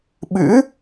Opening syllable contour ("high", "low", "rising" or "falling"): rising